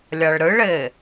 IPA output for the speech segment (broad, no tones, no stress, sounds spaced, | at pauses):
lʲ a ɭ ɾ ɨ ɭ e